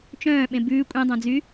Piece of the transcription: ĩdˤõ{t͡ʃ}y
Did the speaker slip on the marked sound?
yes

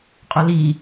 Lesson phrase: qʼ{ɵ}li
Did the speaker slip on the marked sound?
no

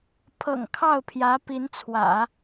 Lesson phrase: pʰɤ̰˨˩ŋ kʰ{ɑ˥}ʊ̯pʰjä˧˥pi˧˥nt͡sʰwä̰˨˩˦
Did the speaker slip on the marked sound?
yes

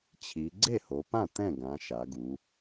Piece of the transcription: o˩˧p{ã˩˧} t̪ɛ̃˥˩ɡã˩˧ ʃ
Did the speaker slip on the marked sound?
yes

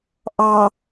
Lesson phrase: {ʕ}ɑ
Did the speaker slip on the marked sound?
yes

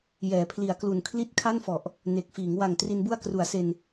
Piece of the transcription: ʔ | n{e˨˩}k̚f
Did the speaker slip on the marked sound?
no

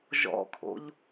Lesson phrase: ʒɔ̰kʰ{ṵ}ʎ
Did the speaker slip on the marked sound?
yes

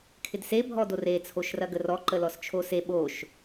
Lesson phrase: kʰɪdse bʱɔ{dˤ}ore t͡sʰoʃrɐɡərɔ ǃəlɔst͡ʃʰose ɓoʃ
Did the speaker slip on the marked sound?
yes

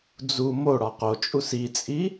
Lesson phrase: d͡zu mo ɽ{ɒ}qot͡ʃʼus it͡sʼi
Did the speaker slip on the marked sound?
no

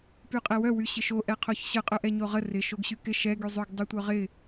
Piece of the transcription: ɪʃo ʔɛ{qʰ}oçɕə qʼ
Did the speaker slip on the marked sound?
no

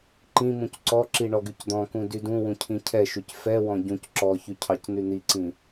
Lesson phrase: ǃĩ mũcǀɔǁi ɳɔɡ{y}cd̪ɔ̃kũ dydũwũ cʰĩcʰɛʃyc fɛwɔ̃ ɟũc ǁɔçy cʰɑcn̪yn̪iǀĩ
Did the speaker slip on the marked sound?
no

